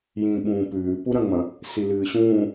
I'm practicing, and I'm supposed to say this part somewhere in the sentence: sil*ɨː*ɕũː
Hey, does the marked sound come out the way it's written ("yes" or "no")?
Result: yes